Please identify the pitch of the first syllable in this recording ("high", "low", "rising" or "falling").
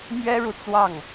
high